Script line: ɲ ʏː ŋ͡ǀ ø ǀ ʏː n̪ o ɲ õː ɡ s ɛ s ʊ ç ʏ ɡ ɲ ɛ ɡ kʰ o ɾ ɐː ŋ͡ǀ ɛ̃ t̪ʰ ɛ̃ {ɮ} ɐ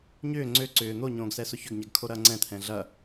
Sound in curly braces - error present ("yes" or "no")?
no